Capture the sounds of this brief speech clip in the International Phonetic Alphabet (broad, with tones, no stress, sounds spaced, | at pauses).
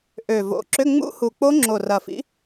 ʔ ø˨˩ v o̰˨˩ ǁ ʏ˧˥˧ ŋ͡m ṵ˦˥ h u˨˩ k͡p o˦˥ ŋ͡ǁ o˨˩ r ɐ˨˩ f ḭ˨˥